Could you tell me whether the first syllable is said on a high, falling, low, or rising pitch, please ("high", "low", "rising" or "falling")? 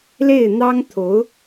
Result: falling